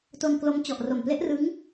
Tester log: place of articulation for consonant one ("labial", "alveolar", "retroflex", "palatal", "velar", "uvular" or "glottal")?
alveolar